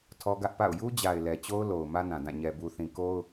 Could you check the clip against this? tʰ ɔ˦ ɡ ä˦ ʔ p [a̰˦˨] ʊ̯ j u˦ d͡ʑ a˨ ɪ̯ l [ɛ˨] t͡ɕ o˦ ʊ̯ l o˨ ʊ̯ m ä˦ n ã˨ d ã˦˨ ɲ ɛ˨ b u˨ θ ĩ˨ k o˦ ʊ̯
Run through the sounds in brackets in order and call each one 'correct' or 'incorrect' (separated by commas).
correct, correct